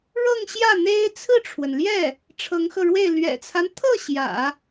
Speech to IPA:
ɻɤ˥˧ŋɕjä˥˩ n̪e˥ɪ̯ t͡sʰɹ̩˥˩ʈ͡ʂʰwə˩nljɛ˥˩ | ʈ͡ʂʰɤ˧˥ŋxɤ˧ɻwe˥˩ɪ̯ lɥɛ̰˨˩t͡sʰa˦nt̪ʰɤ˥˩ ɕjä̰˨˩˦

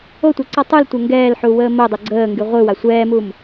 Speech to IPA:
otʷɛǀɔ tˤultʷɛ ŋɡɛːlħuwəː modˤo ɡ͡ǀəːŋɡy ʁʷɯwa sʷɛːmum

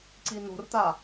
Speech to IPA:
ǀino̤rt̪a

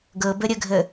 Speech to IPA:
ɡɤbəɾʲəɡʱə

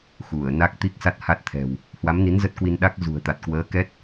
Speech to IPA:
xu˧˩ə̯ na˦˥k̚t̪i˦˥k̚sa˦˥t̚ ha˦˥t̚t̪ʰɛ̤˨˩w | hwa˨˦mni˨˦n zə˦˥t̚kwi˧n ɗa˦˥k̚ zṳ˨˩ə̯t̪a˨˩t̚kwəː˨˦kɛ˦˥t̚

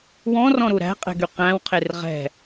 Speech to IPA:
wɔ̃rɔ̃ɾu ɾæ̤qʼɛ̤ɡy qæ̃wqʰer ʁɛ̤

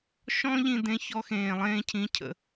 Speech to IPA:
ʃɔ̃˥ʎĩ˧dẽ˧ çɔ˧xẽː˩lˠẽː˧cʰĩ˩˧ cʰə̰˩

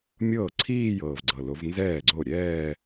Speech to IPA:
mʲɤː˥˩ ǀʰiː˥˧jɤː˨˩vɡ͡ǀɤ˨˩ lo˨˦v nzɛː˥˩ɡ͡ǀo˥˩ ɾʲɛː˥˧

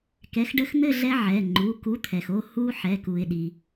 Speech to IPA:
kɛ˨˥xɖə˦xn̪ɘ˥˨ ɮɛ˦ʕɛ˩˧˩ ŋ͡ǃu˩˧˩ku˨˥t̪ʰɛ˩xo˥˨ hu˦ħɛ˩˧˩ ku˩ɪ̯ ɗi˩

